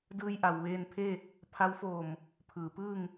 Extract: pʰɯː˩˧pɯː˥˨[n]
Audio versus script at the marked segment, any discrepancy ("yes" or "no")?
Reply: yes